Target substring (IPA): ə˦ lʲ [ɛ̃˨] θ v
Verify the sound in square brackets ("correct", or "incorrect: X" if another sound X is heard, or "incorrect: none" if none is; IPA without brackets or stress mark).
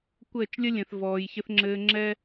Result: correct